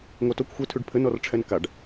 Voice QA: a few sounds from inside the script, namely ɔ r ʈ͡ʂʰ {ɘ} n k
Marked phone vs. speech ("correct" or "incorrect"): incorrect